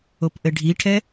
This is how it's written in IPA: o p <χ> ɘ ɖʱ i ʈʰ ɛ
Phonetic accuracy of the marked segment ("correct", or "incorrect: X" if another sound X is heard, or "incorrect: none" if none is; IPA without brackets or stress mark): incorrect: ʔ